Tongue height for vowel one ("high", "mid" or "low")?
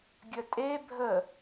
mid